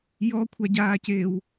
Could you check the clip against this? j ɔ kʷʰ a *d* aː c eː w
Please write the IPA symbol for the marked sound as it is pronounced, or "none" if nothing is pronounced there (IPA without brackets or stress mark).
ɟ